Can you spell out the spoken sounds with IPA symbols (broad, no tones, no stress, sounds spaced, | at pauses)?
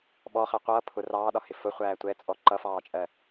ɓ ɔ χ ɛ qʷ ʌː pʰ ʊ r ɑː ɗ ɒ h ɪ f ʊ χʷ æː tʷ ɛ t͡sʼ ɔ ǃ ʌ f ɑː t͡ʃʼ ɜ